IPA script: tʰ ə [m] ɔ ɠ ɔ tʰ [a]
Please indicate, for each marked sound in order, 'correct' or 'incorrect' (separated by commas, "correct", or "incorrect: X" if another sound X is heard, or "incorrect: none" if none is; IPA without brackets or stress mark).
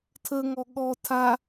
incorrect: ŋ, correct